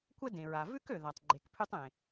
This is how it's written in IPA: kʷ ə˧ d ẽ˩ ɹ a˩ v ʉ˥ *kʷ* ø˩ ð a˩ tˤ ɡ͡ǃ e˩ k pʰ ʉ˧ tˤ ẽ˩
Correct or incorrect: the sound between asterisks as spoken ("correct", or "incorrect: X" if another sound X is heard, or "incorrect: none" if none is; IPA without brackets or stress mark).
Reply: incorrect: k